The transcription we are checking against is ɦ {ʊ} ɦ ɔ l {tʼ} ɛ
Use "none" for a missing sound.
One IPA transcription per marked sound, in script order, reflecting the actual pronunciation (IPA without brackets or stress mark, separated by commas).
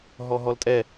ɔ, tʼ